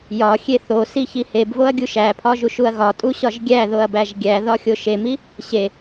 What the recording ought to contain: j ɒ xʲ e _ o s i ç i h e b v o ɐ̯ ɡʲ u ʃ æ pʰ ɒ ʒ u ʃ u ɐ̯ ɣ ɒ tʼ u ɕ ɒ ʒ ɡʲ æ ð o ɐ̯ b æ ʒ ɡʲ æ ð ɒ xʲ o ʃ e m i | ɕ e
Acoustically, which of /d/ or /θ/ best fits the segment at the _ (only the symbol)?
θ